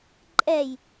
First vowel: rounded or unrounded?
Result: unrounded